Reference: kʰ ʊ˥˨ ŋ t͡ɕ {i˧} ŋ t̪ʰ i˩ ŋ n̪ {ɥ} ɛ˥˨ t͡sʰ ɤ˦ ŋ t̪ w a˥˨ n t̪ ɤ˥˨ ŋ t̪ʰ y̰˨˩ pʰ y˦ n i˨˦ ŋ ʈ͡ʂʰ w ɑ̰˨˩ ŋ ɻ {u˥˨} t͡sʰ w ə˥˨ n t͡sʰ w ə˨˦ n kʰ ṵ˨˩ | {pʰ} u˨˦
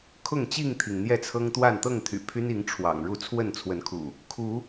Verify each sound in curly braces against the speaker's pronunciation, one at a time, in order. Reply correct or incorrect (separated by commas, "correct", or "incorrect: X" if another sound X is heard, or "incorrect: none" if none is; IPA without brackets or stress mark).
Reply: incorrect: i˥˨, incorrect: j, correct, incorrect: kʰ